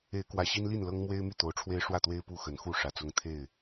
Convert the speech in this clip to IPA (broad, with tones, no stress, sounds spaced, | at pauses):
e˨˦ ɪ̯ k w ä˨˩ ɕ i˦ n l i˥˨ n l ɤ˦ ŋ m w e˦ ɪ̯ m y˥˨ t̪ o˨˦ ʊ̯ ʈ͡ʂʰ w e˦ ɪ̯ ʂ w ä˥˨ t̪ w e˦ ɪ̯ p u˦ x ə˨˦ n x u˥˨ ʂ ä˨˩ t͡s ʊ˦ ŋ t̪ʰ e˥˨ ɪ̯